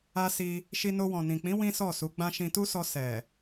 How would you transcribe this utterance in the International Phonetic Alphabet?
a˧ s i˧ | ʃ i˧ n o˧ w ɔ̃˨ n ĩ˨ k͡p ĩ˨˦ w ĩ˦ s ɔ˦˨ s u˨˦ ɡ͡b ã˧ ʃ ĩ˧ t u˦ s ɔ˧ s ɛ˨

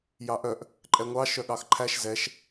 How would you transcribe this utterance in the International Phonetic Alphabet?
j ɑ ʔ œ ʔ | ǃʼ ɛ ŋʷ ɑ ʃ œ ɠ ɑ x ǃʰ æ ʃ z ɛ ʃ

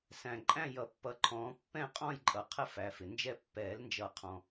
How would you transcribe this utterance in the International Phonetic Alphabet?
s æ̃˨ ǃʼ æ̃˥˧ j ʌ˨ pː ʌ˨˦ ǃʰ ɔ̃ː˨˦ pː ɛ̃˥˧ qʼ ɔ̃˥˧ j ǃʼ ʌ˨ qʰ ə˥˧ f æ˨˦ f ɪ˨ n d͡ʒ ɛ˥˧ pː ɛː˨˩˦ l n d͡ʒ ʌ˨˩˦ qʰ ɔ̃˨

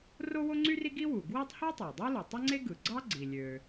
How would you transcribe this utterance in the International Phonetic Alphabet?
r o˥ w o˥ ŋ͡ǀ y˥ r i˥ ɡ i˥ w u˩ ɡ w i˥ tˤ h o˥ tˤ æ˩ dˤ o˥ l u˩ tˤ e˥ ŋ͡ǀ e˥ ɡ ɯ˩ ɡ͡ǀ ɑ˥ ɡ͡ǀ i˩ lʲ ø˩

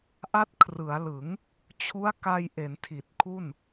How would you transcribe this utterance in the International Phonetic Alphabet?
ʔ a˦˥ t̚ kʰ r ɯ˩˦ a̯ l ɯ˩˦ ŋ | t͡ɕʰ u˦˥ a̯ k a˧ j ʔ e˩˦ n tʰ i˨˩ t̚ kʰ u˥˩ n

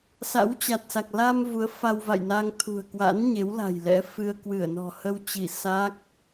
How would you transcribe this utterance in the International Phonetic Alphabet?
s a̰˧˥ w t͡ɕ a˨˩ t̚ s a˨˩ k̚ l a˧ m v u˨˦ ə̯ f a˧ w v a̰˧˨ j n a˧ ŋ t̪ʰ ṳ˨˩ ə̯ k w a̰˧˥ n ɲ e˨˦ w l a̤˨˩ j l ɛ̰˧˥ f ɨ˧ ə̯ k w ɨ˧˩ ə̯ n ɔ̤˨˩ h ə˧ w t͡ɕ i˧˩ s a˦˥ k̚

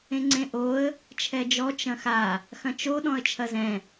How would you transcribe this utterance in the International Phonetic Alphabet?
ẽ ŋ͡ǀ ẽ ʔ o ə̯ | t͡ʃʰ ɛ d͡ʒ ɔ t͡ʃ ɐ̃ x a | x ɐ̃ t͡ʃ o ɗ ɔ̃ ə̯ t͡ʃʰ ɐ z ɛ̃

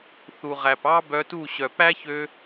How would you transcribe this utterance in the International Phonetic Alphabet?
θ u˨ ʁ æ˨ p ɑ˦ b œ˧ t u˦˨ ɕ œ˨ p æ˦ ç ø˧

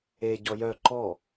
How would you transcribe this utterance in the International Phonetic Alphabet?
e ɟ ɔ j œ ǃ ɔ

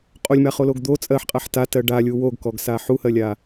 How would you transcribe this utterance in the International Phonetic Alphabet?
qʼ o lʲ m a χ o l o ɡ d̪ o t͡sʼ ɜ ħ qʼ a ħ t a t ɜ ɖ a lʲ u w o ɡ k ɔ ɡ s a ħ u h ɜ lʲ a

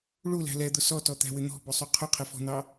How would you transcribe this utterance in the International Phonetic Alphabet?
ɭ u l æ̤ l ɛ d̪ ʊ s ɔ t ɔ t̪ æ̤ w ɪ n̪ ɔ̤ b ʊ sˤ u qʰ ʊ qʰ ɪ f ɔ̤ n̪ ɑ

